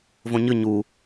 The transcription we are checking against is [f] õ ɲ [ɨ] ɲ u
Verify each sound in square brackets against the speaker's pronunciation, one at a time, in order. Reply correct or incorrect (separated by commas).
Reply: incorrect, correct